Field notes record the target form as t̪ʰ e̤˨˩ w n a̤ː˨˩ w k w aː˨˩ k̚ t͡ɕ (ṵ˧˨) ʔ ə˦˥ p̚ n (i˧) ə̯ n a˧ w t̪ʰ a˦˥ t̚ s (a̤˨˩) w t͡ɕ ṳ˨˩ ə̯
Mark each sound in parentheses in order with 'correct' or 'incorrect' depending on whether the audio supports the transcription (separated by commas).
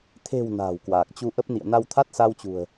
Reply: incorrect, incorrect, incorrect